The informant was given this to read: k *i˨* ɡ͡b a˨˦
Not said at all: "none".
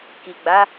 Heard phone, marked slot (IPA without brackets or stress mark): i˨